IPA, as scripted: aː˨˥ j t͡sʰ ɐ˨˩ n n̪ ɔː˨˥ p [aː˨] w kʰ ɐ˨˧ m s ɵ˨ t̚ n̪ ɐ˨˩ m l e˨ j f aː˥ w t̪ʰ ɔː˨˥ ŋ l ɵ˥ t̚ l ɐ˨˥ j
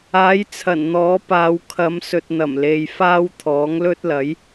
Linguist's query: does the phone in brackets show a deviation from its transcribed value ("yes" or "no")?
yes